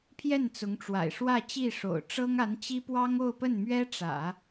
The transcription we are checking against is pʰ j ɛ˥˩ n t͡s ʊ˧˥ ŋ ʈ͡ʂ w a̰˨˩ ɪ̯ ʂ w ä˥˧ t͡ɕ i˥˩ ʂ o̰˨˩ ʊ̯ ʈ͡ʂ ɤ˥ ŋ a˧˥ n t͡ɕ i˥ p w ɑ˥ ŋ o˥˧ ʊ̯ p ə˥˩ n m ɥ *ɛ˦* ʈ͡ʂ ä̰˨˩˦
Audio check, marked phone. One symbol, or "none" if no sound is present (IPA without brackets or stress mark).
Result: ɛ˥